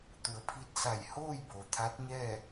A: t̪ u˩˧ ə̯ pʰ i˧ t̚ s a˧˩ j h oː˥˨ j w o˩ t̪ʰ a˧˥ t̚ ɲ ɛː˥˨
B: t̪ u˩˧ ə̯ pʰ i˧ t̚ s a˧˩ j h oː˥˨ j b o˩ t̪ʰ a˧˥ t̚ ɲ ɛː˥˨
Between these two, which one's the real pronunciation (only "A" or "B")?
B